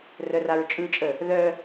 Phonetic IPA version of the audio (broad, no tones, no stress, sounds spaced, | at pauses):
r œ r a ɹ t͡ʃʼ ɯ t͡ʃʼ ə | ð œ